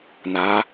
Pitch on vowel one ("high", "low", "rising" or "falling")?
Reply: rising